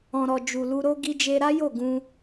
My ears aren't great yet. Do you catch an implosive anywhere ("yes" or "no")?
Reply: no